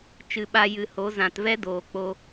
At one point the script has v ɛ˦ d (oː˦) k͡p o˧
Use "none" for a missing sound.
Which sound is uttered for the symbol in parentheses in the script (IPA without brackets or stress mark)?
oː˨